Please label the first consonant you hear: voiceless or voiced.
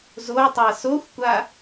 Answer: voiced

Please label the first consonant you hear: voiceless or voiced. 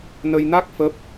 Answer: voiced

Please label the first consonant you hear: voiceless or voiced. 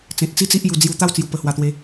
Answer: voiceless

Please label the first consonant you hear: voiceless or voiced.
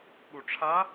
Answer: voiced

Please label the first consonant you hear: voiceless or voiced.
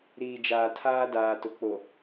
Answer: voiced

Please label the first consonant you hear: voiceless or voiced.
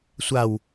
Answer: voiceless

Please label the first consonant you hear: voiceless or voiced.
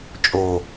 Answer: voiceless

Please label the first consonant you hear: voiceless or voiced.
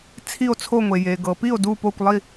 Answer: voiceless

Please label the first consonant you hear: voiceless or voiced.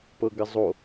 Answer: voiceless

